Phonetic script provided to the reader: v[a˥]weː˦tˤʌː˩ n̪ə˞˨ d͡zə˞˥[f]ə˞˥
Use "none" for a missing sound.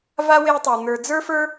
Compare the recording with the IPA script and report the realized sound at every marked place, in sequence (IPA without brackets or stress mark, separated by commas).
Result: a˥, f